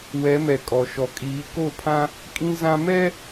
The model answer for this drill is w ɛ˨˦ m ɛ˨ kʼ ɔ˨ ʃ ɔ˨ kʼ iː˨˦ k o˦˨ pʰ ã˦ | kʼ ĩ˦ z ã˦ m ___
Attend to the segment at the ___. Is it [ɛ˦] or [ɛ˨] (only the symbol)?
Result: ɛ˦